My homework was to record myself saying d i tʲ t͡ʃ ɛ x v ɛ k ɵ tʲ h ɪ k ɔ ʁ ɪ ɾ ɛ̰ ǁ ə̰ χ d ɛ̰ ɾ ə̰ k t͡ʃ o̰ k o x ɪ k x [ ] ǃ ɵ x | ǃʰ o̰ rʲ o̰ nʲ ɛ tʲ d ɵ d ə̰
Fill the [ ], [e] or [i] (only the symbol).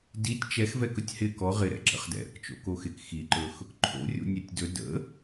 i